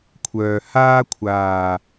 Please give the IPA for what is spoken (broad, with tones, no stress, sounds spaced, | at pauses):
kʷʰ œː˨ h aː˥ kʷʰ aː˨˩